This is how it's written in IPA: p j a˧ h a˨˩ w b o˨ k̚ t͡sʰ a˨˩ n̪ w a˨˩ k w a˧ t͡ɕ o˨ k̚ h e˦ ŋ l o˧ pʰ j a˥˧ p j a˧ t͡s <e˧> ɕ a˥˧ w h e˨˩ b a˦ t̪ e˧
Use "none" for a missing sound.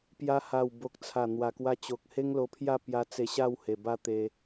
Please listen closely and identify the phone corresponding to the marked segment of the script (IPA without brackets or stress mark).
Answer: e˧